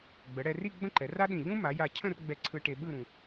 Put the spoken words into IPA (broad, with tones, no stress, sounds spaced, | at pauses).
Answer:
ɡ͡b ə˩˧ ɽ ɛ˧ r i˥˧ ɡ͡b ə̃˥˧ ǃ ɛ˩˧ r a˥ ɗ ĩ˧˩ ʎ ũ˥ m a˩˧ j a˧˩ cʰ ə̃˥˧ r ɡ͡b ɛ˧ ǀʰ ɯ˧ ʈ e˧ ɓ ɯ˥˧ ɾ ũ˧